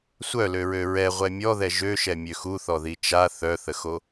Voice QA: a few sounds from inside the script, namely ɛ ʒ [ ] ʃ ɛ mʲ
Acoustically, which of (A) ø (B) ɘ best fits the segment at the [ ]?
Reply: A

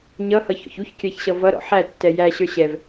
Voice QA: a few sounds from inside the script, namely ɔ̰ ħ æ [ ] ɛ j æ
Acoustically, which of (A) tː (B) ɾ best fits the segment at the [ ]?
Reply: A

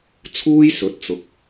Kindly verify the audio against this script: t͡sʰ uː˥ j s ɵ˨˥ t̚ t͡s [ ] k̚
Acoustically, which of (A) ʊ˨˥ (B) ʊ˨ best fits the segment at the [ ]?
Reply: B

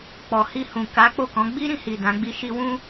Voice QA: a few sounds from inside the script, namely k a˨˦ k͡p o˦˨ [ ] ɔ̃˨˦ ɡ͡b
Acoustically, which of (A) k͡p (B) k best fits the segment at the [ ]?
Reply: B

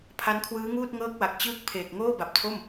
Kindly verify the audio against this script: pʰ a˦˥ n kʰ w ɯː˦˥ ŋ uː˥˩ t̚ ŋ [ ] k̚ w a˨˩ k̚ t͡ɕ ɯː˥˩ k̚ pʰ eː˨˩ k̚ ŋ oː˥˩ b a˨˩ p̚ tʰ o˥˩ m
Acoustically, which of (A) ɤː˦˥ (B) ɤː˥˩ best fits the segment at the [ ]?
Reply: A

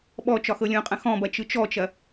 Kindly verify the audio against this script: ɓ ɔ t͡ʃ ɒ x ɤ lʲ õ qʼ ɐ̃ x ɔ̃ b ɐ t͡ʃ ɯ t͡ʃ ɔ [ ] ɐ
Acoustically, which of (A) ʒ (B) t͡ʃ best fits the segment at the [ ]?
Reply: B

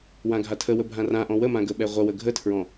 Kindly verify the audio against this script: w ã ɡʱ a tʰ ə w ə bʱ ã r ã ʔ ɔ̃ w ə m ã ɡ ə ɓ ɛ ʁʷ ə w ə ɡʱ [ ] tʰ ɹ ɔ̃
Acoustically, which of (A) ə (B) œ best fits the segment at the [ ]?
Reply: A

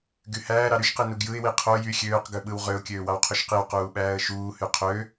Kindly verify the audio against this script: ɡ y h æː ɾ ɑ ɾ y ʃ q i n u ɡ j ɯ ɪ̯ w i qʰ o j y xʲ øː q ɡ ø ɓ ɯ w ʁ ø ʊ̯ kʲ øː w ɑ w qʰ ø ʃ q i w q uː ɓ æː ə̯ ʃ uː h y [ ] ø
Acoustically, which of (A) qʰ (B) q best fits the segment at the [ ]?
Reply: A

